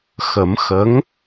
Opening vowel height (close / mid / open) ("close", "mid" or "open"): mid